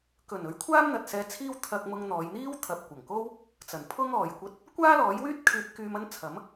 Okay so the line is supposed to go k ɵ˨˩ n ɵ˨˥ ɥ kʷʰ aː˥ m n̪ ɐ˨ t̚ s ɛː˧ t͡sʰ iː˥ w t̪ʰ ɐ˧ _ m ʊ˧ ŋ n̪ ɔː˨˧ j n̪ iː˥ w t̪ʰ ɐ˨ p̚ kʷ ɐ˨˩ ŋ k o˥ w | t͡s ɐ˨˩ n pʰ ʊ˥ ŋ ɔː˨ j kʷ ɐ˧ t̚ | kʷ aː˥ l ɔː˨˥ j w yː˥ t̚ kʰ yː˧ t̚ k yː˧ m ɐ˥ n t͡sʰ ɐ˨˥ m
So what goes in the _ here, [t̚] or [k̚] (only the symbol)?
k̚